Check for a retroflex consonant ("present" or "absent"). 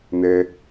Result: absent